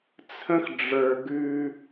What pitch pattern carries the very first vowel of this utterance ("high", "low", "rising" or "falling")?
high